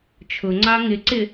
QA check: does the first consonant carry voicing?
no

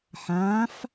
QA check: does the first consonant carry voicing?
no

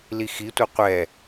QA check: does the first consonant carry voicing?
yes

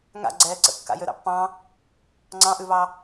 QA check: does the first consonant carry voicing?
yes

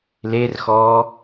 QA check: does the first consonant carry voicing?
yes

